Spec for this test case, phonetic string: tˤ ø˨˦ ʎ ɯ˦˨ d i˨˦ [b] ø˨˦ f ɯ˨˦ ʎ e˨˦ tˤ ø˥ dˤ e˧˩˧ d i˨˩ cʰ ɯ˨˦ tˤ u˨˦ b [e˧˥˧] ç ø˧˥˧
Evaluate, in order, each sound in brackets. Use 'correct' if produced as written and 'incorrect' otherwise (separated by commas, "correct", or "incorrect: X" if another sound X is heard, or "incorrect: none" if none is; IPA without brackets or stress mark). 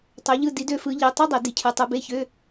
incorrect: d, correct